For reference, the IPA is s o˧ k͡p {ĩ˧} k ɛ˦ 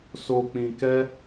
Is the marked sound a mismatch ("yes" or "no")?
no